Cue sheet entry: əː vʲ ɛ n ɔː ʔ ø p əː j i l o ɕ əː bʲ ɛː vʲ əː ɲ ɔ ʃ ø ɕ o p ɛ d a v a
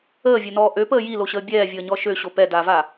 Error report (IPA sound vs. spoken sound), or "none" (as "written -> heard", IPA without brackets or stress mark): none